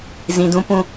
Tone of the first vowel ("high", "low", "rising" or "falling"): low